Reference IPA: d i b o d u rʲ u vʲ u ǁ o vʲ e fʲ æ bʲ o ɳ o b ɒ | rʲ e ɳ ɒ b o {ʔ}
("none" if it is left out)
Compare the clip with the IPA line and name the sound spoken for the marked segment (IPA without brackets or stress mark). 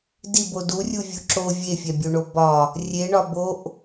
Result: ʔ